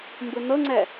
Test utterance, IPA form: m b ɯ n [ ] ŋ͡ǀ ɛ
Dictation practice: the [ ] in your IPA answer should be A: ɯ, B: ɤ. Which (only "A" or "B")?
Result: B